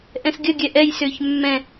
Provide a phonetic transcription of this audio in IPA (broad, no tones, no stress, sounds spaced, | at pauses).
ʔ ɛ̃ s ɡʲ ə ɡʲ ɛ ʔ ɛ j s ʏː ç mː ɛ̃